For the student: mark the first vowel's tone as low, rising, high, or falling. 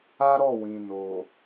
high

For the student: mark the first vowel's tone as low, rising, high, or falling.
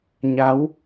rising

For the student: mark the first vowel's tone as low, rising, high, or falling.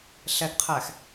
low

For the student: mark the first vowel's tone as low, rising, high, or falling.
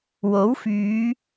rising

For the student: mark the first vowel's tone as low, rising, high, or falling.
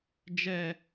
high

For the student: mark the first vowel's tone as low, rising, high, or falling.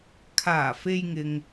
low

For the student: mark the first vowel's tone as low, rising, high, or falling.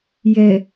low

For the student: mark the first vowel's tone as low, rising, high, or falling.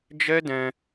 high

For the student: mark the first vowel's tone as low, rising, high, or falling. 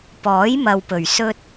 rising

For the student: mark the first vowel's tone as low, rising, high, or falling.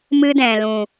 high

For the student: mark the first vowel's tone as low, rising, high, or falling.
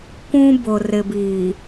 high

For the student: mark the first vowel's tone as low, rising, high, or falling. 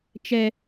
high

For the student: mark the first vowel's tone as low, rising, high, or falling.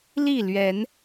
falling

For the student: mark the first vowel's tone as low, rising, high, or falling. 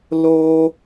high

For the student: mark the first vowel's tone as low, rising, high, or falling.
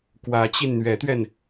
rising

